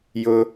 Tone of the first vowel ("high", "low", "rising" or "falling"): low